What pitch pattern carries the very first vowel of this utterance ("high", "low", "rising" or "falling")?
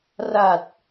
low